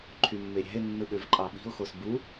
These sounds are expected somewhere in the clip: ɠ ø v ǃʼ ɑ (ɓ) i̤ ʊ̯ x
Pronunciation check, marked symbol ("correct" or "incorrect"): correct